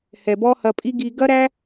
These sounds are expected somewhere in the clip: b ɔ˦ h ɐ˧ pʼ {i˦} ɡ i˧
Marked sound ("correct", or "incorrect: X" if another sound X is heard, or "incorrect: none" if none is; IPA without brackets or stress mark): correct